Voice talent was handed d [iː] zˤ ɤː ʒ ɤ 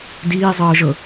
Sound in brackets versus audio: correct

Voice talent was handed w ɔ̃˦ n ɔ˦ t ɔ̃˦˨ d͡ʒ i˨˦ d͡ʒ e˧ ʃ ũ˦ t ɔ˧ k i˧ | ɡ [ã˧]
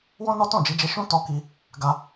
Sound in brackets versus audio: incorrect: a˧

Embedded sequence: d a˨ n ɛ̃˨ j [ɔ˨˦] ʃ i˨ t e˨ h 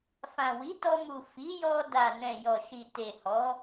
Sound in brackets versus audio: incorrect: ɔ˨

